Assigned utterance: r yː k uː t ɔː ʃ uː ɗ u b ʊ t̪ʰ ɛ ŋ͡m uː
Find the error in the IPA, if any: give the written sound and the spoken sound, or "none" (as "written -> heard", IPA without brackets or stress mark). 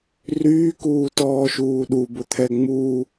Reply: none